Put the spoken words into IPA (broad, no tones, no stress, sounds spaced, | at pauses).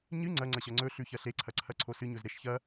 ɲ ɨ ŋ͡ǀ ɐ ŋ͡ǀ ɐ ɕ ɐ ŋ͡ǀ ɵ ɬ ʉ ç ɐ ɬ e ǀʰ ɐ ǀʰ ɐ ǀʰ o s ɨ ɲ ɵ z ɾ e ʃ ç ɐ